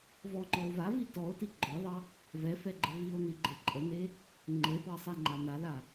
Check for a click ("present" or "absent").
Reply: present